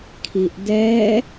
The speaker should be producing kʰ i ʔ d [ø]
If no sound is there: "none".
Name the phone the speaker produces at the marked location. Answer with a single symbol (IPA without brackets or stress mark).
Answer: ɛ